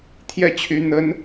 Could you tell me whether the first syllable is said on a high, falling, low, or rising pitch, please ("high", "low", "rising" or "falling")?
falling